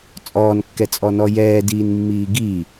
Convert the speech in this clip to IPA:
t͡sʼɔːnkːɛt͡sʼɔnɔ jɛːdiːnmːiː ɡi

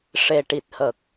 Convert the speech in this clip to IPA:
ʂe˨˩ʈi˨˩t̚hə˨˩k̚

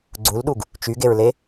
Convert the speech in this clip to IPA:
ɡ͡ǀulɗuɡ | t͡ʃyɡeɹle

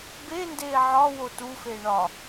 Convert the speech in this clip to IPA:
bendeː ʕɒwo tufe ɳɒ

